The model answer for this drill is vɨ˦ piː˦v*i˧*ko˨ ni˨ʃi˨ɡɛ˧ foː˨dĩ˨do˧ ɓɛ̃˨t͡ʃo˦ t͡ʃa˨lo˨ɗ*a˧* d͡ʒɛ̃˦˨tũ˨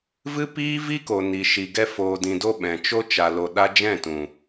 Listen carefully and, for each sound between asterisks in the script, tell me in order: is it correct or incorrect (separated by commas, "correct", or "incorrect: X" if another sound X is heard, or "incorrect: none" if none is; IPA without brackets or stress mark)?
incorrect: i˦, correct